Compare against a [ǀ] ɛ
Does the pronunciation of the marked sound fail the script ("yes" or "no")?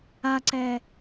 no